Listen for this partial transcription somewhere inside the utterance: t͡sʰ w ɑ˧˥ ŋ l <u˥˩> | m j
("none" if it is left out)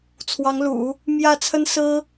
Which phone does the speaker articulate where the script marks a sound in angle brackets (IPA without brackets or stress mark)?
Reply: ṵ˨˩˦